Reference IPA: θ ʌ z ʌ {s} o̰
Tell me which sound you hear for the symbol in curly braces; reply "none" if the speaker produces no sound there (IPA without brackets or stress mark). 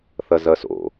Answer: s